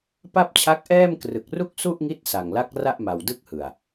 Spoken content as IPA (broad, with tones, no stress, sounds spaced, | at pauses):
p a˥˩ p̚ t͡ɕʰ a˦˥ k̚ ʔ ɛː˥˩ m k r ɯ˨˩ k̚ r u˥˩ k̚ s u˥˩ ʔ ŋ i˦˥ t̚ s a˨˩ ŋ l a˦˥ k̚ r a˥˩ ʔ m a˨˩ w d ɯ˥˩ k̚ h ɯ˨˩ a̯